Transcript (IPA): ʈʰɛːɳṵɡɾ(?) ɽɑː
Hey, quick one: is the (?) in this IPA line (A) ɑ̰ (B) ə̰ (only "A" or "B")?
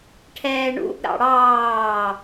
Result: A